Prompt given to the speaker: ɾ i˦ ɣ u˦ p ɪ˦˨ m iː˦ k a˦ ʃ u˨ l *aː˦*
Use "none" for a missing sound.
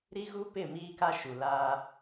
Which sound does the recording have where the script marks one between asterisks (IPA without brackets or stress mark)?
aː˦